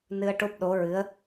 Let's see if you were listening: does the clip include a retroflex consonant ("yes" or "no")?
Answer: yes